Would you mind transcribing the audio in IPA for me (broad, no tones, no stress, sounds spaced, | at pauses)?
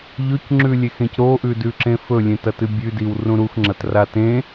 ʎ ɵ c ŋ͡ǁ ʉ lʲ e x ẽ c ɾ o ʔ ʉ d ʉ ǁ ẽ f ɵ lʲ ẽ t ɐ t ɨ bʲ ʉ d i w r ũ ɾ u x ŋ͡ǁ ɐ t r a t ẽ